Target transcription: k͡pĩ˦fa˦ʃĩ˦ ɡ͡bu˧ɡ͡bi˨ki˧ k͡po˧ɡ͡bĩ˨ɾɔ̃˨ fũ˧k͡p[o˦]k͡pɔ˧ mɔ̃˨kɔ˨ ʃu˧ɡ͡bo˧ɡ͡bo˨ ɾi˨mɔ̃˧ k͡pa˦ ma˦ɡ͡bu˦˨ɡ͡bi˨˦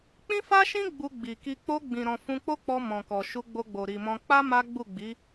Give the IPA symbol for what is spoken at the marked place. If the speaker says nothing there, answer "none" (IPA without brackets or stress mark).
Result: o˦